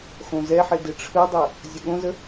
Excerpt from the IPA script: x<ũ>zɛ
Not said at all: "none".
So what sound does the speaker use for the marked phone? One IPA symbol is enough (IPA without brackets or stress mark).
õ